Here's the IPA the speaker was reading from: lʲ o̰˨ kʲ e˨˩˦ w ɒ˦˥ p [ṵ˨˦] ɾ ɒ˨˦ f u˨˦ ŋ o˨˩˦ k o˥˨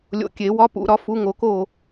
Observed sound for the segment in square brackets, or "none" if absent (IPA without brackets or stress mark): ṵ˨˩˦